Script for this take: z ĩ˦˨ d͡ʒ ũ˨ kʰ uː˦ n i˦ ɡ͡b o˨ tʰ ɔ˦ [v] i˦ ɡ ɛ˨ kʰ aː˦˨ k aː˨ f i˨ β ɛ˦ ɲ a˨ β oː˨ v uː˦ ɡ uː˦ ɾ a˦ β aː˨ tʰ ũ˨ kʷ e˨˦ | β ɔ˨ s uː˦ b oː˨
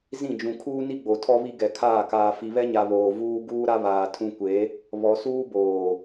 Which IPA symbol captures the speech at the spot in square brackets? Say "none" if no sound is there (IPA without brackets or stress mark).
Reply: β